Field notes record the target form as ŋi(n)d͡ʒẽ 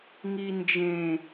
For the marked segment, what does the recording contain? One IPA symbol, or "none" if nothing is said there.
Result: n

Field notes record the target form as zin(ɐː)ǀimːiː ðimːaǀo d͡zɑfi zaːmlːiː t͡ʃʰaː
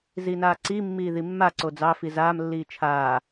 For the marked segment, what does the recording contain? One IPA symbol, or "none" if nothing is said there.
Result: aː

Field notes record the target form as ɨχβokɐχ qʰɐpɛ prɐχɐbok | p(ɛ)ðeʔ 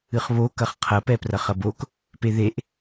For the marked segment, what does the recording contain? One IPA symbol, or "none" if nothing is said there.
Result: e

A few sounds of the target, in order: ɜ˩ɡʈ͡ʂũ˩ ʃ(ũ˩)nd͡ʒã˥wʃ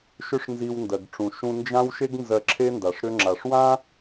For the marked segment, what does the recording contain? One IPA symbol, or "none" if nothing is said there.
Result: ũ˧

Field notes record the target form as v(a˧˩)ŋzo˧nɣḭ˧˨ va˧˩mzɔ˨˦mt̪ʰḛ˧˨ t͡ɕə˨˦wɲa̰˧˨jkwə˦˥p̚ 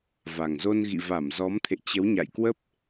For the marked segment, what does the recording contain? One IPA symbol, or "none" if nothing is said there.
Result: a˨˩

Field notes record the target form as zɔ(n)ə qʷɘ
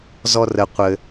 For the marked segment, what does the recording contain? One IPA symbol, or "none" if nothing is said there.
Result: r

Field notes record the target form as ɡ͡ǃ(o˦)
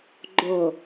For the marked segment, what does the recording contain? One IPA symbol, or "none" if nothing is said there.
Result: o˨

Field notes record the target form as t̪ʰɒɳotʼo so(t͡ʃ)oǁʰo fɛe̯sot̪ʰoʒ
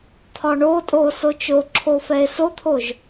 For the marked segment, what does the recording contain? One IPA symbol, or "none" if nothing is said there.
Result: t͡ʃ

